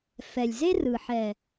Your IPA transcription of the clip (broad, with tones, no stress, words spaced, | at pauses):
fɛ˨lʲze˦rɯ˨ ħɛ˨